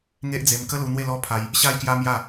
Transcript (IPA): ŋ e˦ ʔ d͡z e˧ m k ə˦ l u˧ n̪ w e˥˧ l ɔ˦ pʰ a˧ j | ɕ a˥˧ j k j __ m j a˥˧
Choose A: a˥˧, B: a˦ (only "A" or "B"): B